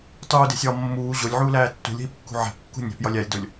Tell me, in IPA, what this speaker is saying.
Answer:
tˤ uː d e̤ sʲ ɒː mː uː ʑ o lʲ ʕ uː l æː tː ṳ lʲ ɦ i p kː ṳ ʕ æ̤ p kː ṳ nʲ æ̤ p j ɒ lʲ æ lʲ d o lʲ

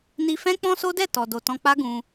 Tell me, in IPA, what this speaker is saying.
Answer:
n i˧ f ɛ̃˦ k͡p ɔ̃˦ s o˦ d ɛ˦˨ t ɔ˨ d o˨ t ɔ̃˧ k͡p a˦ ɡ ũ˧

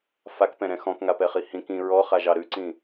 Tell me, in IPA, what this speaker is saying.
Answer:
f a k p ɛ̃ ɾ ɛ̃ x ɔ̃ k ŋ a p ɛ χ i h ĩ k ĩ ɹ ɔ χ a ʒ ɑ ɾ ʉ ǀ ĩ

